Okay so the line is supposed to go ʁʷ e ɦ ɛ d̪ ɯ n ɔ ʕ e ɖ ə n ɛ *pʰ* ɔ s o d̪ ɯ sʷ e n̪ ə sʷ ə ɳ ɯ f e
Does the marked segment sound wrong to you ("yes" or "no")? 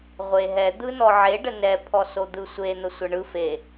no